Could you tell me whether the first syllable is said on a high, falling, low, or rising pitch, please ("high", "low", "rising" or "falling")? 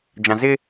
low